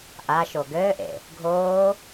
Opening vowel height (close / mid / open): open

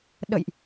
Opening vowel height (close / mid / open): mid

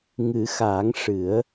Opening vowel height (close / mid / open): close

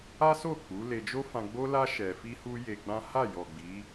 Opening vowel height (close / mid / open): open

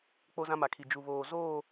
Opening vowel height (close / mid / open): mid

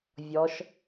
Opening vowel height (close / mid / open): mid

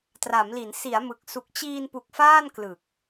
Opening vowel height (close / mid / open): open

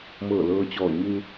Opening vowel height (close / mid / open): mid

